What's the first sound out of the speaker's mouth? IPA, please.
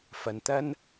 f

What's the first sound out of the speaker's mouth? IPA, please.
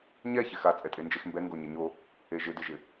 ɲ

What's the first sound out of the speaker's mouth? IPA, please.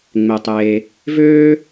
ŋ͡m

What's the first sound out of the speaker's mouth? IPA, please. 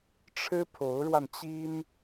ʈ͡ʂʰ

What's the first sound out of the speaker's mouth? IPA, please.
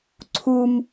ǀʰ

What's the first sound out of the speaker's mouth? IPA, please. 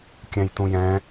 kʲ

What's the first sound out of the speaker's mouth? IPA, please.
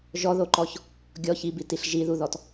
ʒ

